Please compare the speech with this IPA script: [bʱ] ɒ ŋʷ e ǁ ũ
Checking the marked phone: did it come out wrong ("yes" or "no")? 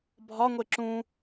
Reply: no